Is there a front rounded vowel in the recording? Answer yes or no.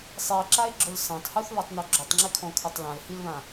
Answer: no